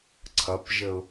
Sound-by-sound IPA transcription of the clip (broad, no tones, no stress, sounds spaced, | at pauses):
ǀʰ ʌ p ʒ ə ʊ̯